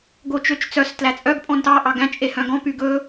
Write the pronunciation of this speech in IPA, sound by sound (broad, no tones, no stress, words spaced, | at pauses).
ɡot͡ʃøt͡ʃt͡sœs tlæt͡sʼœɡ pʼɔ̃ntɑ ʔɑɡæ̃ t͡ʃʼehœ̃ɡɔ̃ pyɡɵ